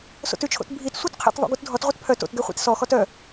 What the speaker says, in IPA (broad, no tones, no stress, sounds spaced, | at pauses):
s o̰ t ʉ t͡ʃʰ o̰ t bʱ i t sʷ œ t qʰ ḛ t ðˤ o̰ ɡ u t dʱ ɔ t ʁʷ e t pʰ œ t o̰ t ɡ ɛ χʷ ḭ t s ɔ x ɔ t œ